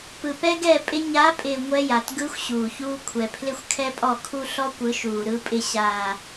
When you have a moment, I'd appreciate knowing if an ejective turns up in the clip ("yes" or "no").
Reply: yes